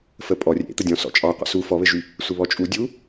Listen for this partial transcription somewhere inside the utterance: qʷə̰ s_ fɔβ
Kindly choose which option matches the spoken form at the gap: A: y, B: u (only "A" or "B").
B